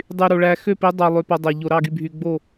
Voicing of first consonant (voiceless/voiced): voiced